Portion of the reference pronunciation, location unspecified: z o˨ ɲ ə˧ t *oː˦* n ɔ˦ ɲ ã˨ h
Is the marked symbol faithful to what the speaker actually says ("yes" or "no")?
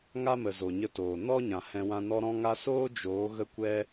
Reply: no